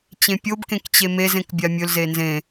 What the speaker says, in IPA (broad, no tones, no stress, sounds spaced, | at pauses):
t͡ɕ ẽ pʲ o b k ẽ k t͡ɕ e m e z ẽ k bʲ a mʲ ɵ l z e n z ẽ